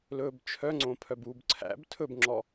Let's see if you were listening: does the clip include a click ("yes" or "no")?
yes